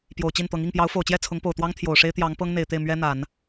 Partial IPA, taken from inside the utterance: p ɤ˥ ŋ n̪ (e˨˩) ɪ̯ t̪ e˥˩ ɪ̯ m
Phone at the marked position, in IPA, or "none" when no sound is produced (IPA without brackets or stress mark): e˨˩